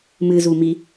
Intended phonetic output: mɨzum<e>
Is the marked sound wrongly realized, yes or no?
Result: yes